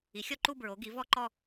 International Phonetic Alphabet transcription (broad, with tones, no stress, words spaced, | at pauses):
i˩˥xʲɔ˥˧ǃu˥˧ bɹo˩˥ɡi˩˥ vɔ˥˧ ǃɔ˥˧